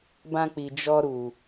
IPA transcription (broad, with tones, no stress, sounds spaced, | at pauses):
b ã˧ k͡p i˨ d͡ʒ ɔ˧ ɾ u˨